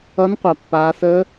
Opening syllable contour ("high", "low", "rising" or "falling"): rising